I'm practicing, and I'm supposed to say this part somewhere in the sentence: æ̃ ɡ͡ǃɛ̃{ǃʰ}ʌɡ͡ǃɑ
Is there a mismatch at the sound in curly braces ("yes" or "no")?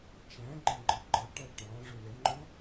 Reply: yes